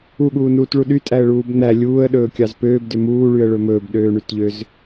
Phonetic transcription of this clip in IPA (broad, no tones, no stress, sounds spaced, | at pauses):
u ɠ uː n uː t ɭ u ɗ y tʼ æ ə̯ ɭ uː b n̪ æ lʲ uː ə̯ ɗ ɵː kʲ ɑ z p øː b d ø m uː ɭ y ə̯ ɭ ɵ m ɵː b ɗ øː ɳ y t ʎ ø z